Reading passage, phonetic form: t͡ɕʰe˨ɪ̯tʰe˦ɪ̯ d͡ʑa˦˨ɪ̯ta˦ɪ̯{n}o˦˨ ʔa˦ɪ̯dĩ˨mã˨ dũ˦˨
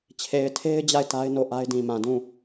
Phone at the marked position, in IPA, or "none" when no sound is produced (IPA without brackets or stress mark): n